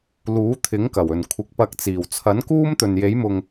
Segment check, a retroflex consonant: absent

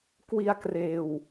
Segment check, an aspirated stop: absent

